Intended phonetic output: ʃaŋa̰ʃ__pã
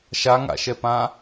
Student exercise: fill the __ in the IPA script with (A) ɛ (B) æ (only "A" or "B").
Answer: A